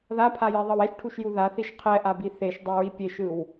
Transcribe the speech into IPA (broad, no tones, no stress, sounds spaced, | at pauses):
ð a pʰ a j ɛ ðˤ ʌ w ɛ ʃ ʈʰ u ʃ j u ð a θ i ʃ qʰ ɛ ʔ a b i θ e ʃ dˤ e ɹ i pʲ e ʃ ɯ w